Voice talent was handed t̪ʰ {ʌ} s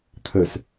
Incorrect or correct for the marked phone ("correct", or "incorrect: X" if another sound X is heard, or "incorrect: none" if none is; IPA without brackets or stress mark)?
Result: incorrect: ə